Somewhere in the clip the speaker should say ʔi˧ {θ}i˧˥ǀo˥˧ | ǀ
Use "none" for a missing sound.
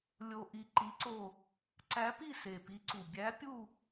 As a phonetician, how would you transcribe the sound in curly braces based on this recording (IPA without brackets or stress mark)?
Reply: ǃ